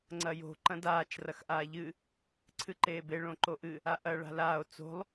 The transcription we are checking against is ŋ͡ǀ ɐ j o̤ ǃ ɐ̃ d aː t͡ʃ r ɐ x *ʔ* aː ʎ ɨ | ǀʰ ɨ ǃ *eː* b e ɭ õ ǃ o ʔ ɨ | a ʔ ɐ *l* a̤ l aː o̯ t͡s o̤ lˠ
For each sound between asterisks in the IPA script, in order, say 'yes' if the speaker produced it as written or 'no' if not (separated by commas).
yes, yes, no